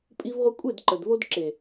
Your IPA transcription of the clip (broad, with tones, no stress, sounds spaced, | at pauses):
pʼ i˦ v ʁʷ ə˦ kʷʼ e˦˨ d ǃ ə˨ d v o˧ d ǁ e˨